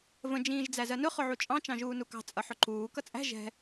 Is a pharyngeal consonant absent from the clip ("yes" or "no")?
no